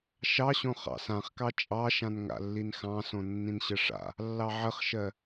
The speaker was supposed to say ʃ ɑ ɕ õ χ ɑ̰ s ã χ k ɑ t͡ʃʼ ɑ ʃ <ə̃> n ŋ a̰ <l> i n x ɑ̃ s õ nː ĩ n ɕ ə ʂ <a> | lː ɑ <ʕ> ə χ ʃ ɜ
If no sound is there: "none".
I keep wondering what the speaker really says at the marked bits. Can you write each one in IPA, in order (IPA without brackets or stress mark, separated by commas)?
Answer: ã, lː, a̰, ʕ